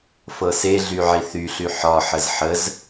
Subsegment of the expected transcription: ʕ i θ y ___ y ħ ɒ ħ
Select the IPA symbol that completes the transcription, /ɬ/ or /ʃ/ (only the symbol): ɬ